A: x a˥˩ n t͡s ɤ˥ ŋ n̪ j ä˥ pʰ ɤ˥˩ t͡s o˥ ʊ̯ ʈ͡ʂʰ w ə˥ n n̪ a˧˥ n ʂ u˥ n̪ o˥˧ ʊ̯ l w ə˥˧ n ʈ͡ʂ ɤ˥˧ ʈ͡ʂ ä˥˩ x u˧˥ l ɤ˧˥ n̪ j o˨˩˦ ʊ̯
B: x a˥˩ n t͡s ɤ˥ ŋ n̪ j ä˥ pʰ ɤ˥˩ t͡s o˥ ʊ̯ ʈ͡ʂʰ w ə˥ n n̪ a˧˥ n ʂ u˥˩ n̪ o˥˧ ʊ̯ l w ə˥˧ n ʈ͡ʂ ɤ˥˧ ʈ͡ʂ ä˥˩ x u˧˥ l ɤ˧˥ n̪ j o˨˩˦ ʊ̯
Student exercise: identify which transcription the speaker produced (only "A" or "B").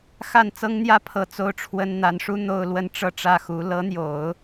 A